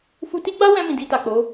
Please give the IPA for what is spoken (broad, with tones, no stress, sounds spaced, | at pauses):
f u˧ t i˦ ɡ͡b a˦ w ɛ̃˧ m ĩ˨ d i˧ t a˨ k͡p o˨˦